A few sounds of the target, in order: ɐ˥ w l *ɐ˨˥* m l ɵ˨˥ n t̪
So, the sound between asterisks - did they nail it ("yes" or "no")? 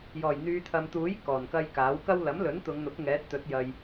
yes